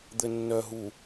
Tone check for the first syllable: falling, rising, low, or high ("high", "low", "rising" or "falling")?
low